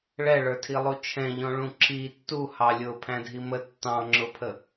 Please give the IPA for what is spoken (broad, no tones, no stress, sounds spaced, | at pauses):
ɭ ɛ ɭ ə˞ tʰ i lˠ u t͡ʃʰ ɛ̃ ʎ ɔ̃ ɭ ũ ǁ i tː u h ɑ lʲ ʊ pʰ æ̃ dʱ i m ə tː ɑ̃ ŋ͡ǁ ʊ pʰ ə